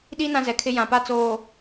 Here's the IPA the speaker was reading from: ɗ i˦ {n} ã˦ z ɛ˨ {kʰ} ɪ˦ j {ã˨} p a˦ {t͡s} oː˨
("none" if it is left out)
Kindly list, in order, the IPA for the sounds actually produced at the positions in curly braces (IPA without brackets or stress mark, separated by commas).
n, kʰ, ã˨, t͡s